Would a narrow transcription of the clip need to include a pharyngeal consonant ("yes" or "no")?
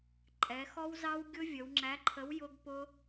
no